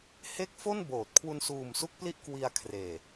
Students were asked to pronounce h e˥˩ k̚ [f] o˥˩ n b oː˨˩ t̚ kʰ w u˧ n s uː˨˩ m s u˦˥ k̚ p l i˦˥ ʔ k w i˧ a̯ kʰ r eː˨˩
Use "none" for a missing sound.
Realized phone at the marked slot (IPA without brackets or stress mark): f